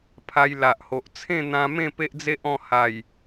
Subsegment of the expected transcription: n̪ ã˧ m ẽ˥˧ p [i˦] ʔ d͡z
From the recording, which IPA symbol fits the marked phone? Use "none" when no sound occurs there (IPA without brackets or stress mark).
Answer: e˦